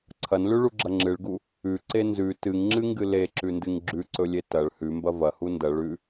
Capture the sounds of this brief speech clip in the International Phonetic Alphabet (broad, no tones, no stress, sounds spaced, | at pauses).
ǀʰ ɐ n l ʉ ɭ u ɡ͡ǁ ɐ ŋ͡ǁ ɨ ɭ ɡ u | ʉ ǀ e n z ʉ t ɨ ŋ ŋ͡ǁ ɨ ŋ ɡ ɨ l e ǁ ʉ n d ɨ ŋ ɡ͡ǁ ʉ ǀ ɵ lʲ e t ɐ ɭ h ʉ m b ɐ v ɐ h u n d ɐ ɭ ʉ